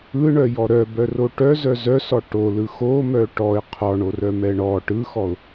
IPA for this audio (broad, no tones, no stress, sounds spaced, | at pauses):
ɯ ɳ œ j ɔ ɾ œ b œ r o ʈ œ z œ z œ s ɔ ʈ o l ɯ x o m œ ʈ ɔ ɪ̯ qʰ ɔ ɳ o r œ m ɛ ɳ ɔ ʈ ɯ x ɔ ʊ̯